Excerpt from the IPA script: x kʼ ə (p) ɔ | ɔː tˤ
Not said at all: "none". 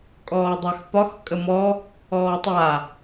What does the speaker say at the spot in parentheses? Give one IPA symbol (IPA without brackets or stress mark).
m